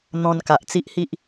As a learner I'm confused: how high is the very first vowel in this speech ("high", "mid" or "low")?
mid